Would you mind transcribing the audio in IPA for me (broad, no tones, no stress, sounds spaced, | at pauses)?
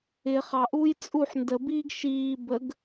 ɪ χ ɑ ʔ uː j t͡sʼ u ħ n d ə b iː ɡ ʃ iː b ə ɡ